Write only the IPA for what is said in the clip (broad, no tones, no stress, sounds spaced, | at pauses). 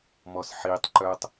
m ɔ s ħ i tˤ ǃ œ tˤ